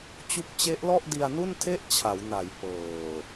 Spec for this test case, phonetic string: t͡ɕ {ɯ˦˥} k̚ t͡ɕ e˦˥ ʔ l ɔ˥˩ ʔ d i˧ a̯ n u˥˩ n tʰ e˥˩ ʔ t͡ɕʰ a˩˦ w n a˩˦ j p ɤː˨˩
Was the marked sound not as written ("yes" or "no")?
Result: yes